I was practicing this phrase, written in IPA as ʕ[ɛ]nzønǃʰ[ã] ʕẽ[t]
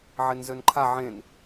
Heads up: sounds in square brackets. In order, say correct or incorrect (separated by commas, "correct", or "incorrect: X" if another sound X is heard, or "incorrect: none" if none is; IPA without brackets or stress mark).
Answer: incorrect: e, incorrect: a, incorrect: n